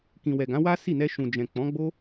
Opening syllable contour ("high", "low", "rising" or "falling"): low